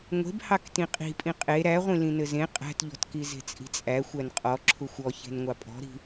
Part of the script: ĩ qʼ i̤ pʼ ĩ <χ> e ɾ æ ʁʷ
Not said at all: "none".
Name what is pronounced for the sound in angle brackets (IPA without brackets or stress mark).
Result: qʼ